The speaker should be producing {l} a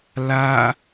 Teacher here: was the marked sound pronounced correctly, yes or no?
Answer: yes